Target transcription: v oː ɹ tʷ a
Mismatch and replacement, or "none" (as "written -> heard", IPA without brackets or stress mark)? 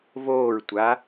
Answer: none